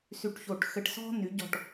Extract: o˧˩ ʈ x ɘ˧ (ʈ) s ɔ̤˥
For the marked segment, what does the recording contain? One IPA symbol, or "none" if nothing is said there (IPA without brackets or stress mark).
ʈ